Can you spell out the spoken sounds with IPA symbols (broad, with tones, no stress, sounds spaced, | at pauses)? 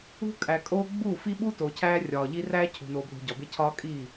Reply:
ṳ˦ kʼ æ˨ kʼ oː˦ ɡ͡b u˦˨ f i˦ ɓ u˦ t o˨ cʰ æː˦ rʲ ɒː˨ ʎ i˦ r æː˦ cʰ ṳ˨ n o˨ b l ṳ˨ ɟ ɒ˨ b e˦ cʰ ɒː˦ kʼ iː˦˨